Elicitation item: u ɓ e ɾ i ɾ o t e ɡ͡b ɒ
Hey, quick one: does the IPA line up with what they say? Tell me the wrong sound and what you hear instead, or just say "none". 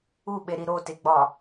none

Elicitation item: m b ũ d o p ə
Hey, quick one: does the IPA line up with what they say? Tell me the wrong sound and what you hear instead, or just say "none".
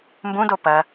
ə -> ɐ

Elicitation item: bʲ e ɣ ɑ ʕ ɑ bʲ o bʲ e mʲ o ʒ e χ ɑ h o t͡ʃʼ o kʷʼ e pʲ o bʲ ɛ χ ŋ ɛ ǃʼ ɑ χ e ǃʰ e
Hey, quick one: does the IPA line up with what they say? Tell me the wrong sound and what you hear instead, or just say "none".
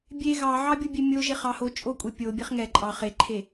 none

